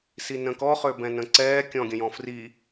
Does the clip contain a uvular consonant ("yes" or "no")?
yes